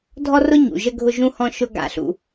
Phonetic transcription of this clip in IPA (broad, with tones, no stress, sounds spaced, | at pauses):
dʱ ɔ˦ r ʊ˦ ɲ ṵ˨ ʒ ə˦ ɡʱ ʊ˦ ʒ ũ˦ h ɔ̃˦ ʃ ʊ˦ ɡ a̰˦ ɬ ṵ˦